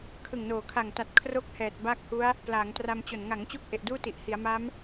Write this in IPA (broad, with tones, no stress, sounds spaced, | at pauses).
kʰ ɯ˨˩ ŋ n oː˩˦ kʰ a˨˩ ŋ t a˨˩ t̚ kʰ r o˦˥ k̚ h ɛː˨˩ t̚ b a˥˩ k̚ h u˦˥ a̯ | p l aː˩˦ ŋ t r a˧ m t͡ɕ o˨˩ n ŋ a˩˦ ŋ t͡ɕ u˥˩ k̚ ʔ e˨˩ ʔ d uː˥˩ t i˨˩ ʔ h i˩˦ a̯ m a˦˥ m